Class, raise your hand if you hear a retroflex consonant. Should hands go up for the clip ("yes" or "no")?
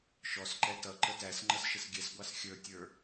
no